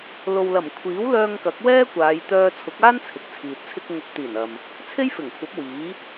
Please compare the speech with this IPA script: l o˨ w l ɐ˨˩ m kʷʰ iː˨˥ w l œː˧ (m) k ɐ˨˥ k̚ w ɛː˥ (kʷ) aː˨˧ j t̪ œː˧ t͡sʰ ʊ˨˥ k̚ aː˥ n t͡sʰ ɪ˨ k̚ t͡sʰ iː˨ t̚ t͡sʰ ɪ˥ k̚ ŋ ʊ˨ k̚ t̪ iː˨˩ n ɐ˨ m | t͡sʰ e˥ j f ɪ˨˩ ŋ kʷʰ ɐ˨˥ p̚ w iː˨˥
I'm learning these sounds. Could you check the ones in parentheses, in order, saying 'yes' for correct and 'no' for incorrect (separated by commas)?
no, yes